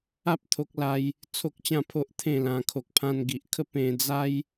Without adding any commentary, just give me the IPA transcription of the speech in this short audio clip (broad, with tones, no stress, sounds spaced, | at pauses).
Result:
a˦ p̚ t̪ʰ o˦ k̚ l a˦ j | t͡sʰ o˦ k̚ t͡ɕ ã˥˧ pʰ o˦ ʔ t̪ʰ ẽ˥˧ l ã˧ kʰ o˨ k̚ pʰ ã˧ n ɡ i˨ ʔ kʰ ə˦ p ẽ˧ d͡z a˦ j